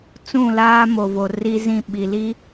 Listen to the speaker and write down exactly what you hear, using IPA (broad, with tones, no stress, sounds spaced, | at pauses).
t͡s ũ˦˨ l aː˦ m o˨ v o˨ r i˦ z ĩ˦˨ ɓ i˨ l i˦